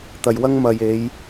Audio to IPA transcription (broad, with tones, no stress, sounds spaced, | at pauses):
t̪ ɐ˨ j w ɐ˥ ŋ m ɐ˨ j e˨˧ j